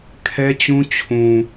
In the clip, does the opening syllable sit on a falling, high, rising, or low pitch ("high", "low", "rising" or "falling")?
high